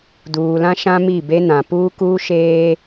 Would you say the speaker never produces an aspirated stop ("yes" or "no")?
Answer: yes